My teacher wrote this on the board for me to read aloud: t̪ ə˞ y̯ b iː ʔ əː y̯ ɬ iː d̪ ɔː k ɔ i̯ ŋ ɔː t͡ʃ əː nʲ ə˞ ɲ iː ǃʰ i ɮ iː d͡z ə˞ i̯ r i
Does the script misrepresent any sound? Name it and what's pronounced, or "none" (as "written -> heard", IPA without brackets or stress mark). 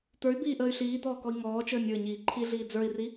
none